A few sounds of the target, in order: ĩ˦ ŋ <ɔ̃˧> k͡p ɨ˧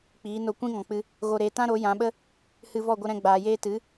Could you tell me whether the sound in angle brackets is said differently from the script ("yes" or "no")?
yes